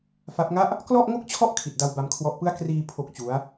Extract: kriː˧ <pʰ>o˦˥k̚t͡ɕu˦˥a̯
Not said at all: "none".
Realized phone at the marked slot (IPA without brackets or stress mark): pʰ